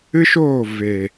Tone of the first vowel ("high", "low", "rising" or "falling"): high